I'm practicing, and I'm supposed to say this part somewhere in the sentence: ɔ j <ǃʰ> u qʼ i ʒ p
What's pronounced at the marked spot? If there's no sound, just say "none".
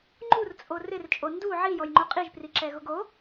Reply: ŋ͡ǃ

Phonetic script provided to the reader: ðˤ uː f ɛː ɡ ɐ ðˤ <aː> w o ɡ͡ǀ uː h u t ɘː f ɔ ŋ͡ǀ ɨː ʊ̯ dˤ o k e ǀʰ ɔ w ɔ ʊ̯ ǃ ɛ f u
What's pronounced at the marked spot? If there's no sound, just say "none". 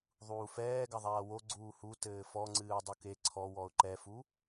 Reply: aː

